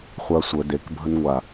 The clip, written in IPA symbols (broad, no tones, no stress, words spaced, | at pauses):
χʷasʷə dekbʱənŋʷa